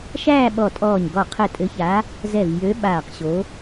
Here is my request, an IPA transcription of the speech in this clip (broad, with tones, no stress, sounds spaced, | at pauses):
ʃ æː˥˧ ɓ ɔ˧˩ tʼ ɔː˧˩ ɲ ɡ ɔ˧˩ qʰ ɘ˧˩ tʼ ɘ˨˦ ç a˨˦ | z ɛ˧˩ v j ø˨˦ ɓ aː˧˩ q ɕ o˨˦